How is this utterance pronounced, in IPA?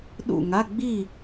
ɗ ṵ˥˨ ŋ a˧˥˧ ɡ͡b i˥˨

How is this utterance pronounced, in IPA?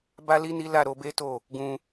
b a˦ l i˦ n i˦ l a˦˨ ɾ o˨˦ b e˦ t o˦˨ | ɡ ũ˧

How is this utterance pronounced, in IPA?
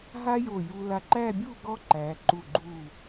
ɦ a˥ j o˧˩ j u˧ l a˧ ǃ æ˥˧ bʲ u˥˧ ɡ ɔ˥ ǃ æ˩˧ ǃ u˧˩ ɡ͡ǃ u˧˩

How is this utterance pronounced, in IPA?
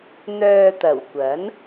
n̪ œː˧ t̪ ɐ˨˩ w kʷ ɐ˨˥ n

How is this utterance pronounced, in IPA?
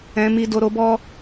ɛ̃˨ m i˨ d o˨ ɾ o˨˦ b ɔ˦

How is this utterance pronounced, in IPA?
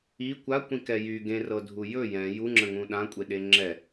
i kʷ a kʷ ĩ k ɛ j y ɡ ẽ r ɤ dʱ u j ɵ j ɛ̃ j u ŋ͡ǁ ə̃ ŋ ũ ɗ ã kʷʼ e ɗ e ŋ͡ǁ ɛ

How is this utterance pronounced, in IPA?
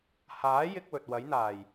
h aː˨˥ j ɪ˧ k̚ w ɵ˨ t̚ w ɐ˨˥ j n̪ aː˨˩ j

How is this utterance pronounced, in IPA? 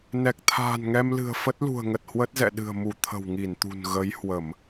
n ɛ˨˩ k̚ t̪ʰ a̤ː˨˩ n ŋ ɛ˧ m l ɨ̤˨˩ ə̯ f ə˦˥ t̚ l ṳ˨˩ ə̯ ŋ ə˨˩ t̚ h w ə˦˥ t̚ z ɛ̰˧˨ ɗ ɨ̤˨˩ ə̯ m u˧˩ t̪ʰ ə̤˨˩ w ŋ i˧˩ n t̪ ṳ˨˩ n ɣ ə˨˦ j h w ə˧˩˨ m

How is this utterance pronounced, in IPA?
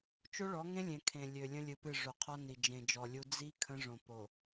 t͡ʃ o˦ ɭ ɔ˨˦ ŋ ẽ˦ lʲ ẽ˨ kʰ ẽ˨ lʲ ø˨ lʲ ə̃˦ lʲ ɨ˨ p ɨ˦˨ ʐ o˨ qʰ ɔ˦ n i˨ d͡ʒ ẽ˨ d͡ʒ ɔ˨ lʲ u˦ d͡z i˦ kʰ ə̃˦ ʐ õ˨ p o˨

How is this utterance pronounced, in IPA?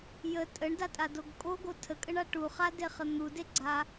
j ə tʼ ə ɳ d a tʼ a d o ɡ kʼ o ɡ o tʰ ə kʼ ə ɳ a ʈ u χ a d e χ ə n̪ u d e ɡ͡ǀ a

